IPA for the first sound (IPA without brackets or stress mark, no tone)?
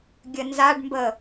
ɡʲ